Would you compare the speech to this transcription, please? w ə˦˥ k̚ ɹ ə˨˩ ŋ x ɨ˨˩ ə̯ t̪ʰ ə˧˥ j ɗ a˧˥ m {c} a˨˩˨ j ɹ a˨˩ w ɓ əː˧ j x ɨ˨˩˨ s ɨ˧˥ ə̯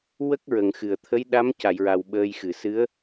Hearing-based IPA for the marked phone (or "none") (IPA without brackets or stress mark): c